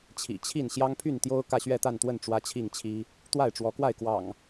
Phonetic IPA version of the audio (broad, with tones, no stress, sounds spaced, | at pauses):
t͡ɕʰ ḭ˨˩ t͡ɕʰ i˥˨ n ɕ j ɑ˦ ŋ pʰ y˥˨ n t̪ j o˦ ʊ̯ k ä˥˨ ɕ ɥ ɛ˥˨ t̪ a˥˨ n t̪ w ə˥˨ n ʈ͡ʂ w ä˦ t͡ɕʰ i˥˨ ŋ t͡ɕʰ i˦ | t̪ w a˥˨ ɪ̯ ʈ͡ʂ w ɔ˨˦ k w a˥˨ ɪ̯ k w ɑ̰˨˩ ŋ